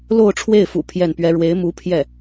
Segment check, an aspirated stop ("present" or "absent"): present